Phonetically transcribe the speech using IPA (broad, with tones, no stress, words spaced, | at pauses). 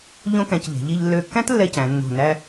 ʎõ˥kæ̃˧cʎe̤˩˧ ʎi˧ʎlːø˧˩kːæ̃˥t lːɛ˥cæ̃˩˧ nːo̤˧˩næ˥